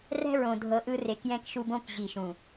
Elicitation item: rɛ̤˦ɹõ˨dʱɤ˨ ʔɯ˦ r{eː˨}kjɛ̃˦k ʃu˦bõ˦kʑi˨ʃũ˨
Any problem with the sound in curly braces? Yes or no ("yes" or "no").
yes